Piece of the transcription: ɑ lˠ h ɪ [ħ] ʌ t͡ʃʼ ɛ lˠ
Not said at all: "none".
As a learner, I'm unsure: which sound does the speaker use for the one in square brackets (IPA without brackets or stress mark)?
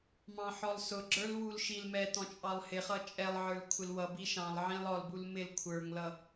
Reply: χ